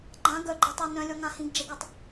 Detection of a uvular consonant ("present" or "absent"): absent